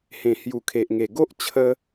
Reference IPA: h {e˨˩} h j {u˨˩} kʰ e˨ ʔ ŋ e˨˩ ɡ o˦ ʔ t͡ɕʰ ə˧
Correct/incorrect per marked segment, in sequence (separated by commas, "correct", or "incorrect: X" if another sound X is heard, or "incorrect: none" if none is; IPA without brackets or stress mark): incorrect: ẽ˨˩, correct